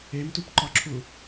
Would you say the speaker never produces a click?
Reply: no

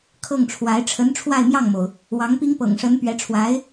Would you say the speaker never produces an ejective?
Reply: yes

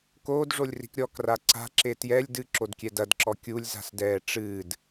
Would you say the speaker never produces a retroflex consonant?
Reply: no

